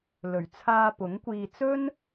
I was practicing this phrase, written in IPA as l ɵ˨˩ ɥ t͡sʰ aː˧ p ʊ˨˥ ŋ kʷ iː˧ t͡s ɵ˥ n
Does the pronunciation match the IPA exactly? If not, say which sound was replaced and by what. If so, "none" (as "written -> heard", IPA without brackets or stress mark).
none